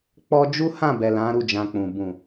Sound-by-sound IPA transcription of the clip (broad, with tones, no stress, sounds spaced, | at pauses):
k͡p ɔ˦ d͡ʒ u˦ h ã˦˨ b ɛ˨ l ã˨˦ ɾ u˦˨ d͡ʒ ã˧ k͡p ũ˨ b ũ˨